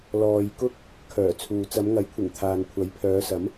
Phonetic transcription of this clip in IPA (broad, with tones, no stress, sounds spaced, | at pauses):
l ɔː˨ j k ʊ˥ k̚ | kʰ œː˨˩ t͡sʰ uː˨ t͡s ɐ˨˧ m ŋ ɐ˨˥ j kʷʰ ɪ˨˩ ŋ t̪ʰ aː˨ n kʷʰ ɐ˨˥ j pʰ œː˨˧ s ɐ˨˥ m